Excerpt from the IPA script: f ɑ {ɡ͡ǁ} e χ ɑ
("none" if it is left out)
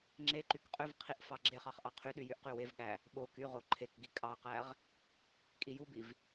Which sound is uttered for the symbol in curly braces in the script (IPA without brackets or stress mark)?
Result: ɡ͡ǁ